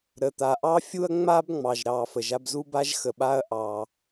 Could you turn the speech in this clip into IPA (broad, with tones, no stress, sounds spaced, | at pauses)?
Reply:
ɾ ə˩ t̪ a˩ ʔ ɑ˥ fʲ u˥ ɐ̯ ŋ͡m a˥ b ŋ͡m ɑ˩ ʒ ɾ ɑ˩ f ə˩ ʒ a˧ b z u˥ b a˥ ʒ x ə˩ ɓ a˧ ɐ̯ ʔ ɑ˩